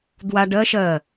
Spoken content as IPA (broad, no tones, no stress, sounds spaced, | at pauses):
d w a ɖ ɜ ʃ ɜ